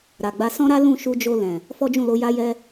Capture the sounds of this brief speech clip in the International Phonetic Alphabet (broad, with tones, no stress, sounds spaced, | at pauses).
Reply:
ɾ a˨ ɡ͡b a˧ s ɔ̃˦ ɾ a˦ l ũ˦˨ ʃ u˧ d͡ʒ o˧ l ɛ̃˨ | f ɔ˦ d͡ʒ ũ˦˨ l o˧ j a˦ j ɛ˦